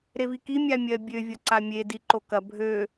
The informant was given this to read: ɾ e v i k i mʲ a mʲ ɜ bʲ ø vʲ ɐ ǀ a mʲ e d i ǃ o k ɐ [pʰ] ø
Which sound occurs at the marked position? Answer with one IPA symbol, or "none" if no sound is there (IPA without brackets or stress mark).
bʱ